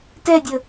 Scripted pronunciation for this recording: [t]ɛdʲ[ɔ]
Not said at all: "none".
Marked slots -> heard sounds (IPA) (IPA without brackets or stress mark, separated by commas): t, ə